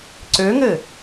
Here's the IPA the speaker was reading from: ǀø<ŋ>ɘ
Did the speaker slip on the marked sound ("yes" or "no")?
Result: no